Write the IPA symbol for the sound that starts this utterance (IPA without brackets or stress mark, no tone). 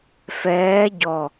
f